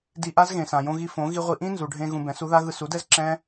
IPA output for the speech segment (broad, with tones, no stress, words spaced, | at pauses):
di˧ʔa˦zɣẽ˨sã˨ jõ˧ɣi˧fõ˨˦ ɣi˧ʁʷi˧ʔĩ˦ nzu˨ɖʱẽ˧ ɣũ˧bɛ̃˨˦su˦ða˦ ɣɯ˧su˨˦dɛ˦z ǁɛ̃˦